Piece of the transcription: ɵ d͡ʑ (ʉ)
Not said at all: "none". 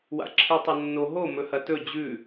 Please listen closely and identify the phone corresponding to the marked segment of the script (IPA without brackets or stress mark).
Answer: ʉ